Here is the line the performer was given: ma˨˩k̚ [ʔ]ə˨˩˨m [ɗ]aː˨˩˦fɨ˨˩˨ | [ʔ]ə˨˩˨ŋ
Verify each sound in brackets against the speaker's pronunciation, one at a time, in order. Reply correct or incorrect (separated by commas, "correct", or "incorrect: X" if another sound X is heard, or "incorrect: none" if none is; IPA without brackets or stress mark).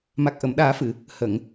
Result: correct, correct, incorrect: h